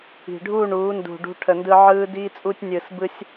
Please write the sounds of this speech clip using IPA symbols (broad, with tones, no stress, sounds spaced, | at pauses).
i̤˨ ɖʱ uː˦˨ ɳ uː˨˦ n d ṳ˨ ɖ ṳ˧ ʈʰ ə˨ n d ɯ˧ ʕ ɯː˧ d iː˧ t͡sʼ u˧ tʲ nʲ ɯː˨ s b ɯ˦ sʲ